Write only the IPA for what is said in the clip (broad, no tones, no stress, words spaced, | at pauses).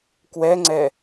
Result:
kwɛŋ͡ǀɛ